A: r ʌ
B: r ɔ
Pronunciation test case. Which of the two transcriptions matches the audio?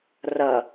A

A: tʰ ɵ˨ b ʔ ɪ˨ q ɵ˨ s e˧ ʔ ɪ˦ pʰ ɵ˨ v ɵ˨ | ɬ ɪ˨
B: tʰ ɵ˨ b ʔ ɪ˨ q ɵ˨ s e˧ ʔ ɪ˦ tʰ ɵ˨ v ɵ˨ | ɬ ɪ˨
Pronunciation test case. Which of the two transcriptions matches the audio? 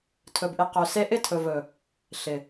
B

